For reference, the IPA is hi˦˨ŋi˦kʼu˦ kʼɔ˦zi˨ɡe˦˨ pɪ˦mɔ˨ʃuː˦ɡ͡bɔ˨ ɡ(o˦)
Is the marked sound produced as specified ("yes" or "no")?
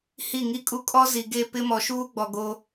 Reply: yes